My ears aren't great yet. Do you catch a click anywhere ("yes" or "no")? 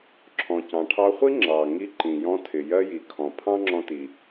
yes